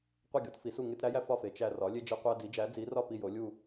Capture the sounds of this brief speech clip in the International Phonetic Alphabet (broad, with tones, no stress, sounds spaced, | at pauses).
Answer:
qʷ e˥˨ ɡʲ ɒ˩˥ t f i˩˥ s u˥˨ ŋ e˦ t ɾ æ˩˥ j æ˦ f ɒ˥˨ f e˩˥ t͡ʃ æ˨ r ɒ˩˥ lʲ e˦ d͡ʒ e˦ qʷ æ˦ d i˩˥ d͡ʒ æ˩˥ d͡z i˩˥ r ɒ˥˨ p i˥˨ j o˩˥ lʲ u˥˨